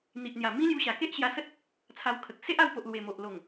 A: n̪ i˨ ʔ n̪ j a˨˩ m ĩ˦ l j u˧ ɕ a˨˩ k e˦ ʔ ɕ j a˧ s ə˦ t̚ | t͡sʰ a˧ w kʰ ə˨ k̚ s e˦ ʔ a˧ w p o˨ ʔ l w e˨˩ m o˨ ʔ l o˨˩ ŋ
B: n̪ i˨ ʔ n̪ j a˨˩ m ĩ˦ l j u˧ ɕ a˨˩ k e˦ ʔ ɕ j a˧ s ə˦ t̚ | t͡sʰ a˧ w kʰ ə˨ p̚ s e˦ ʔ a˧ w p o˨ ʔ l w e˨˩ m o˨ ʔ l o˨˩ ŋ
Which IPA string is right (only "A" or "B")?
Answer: A